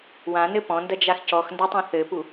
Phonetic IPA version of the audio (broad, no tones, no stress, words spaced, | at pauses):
wãnɘ pɔ̃ndɐd͡ʒax cɔxndatˤũ θɘpu